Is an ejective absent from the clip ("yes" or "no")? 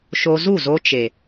yes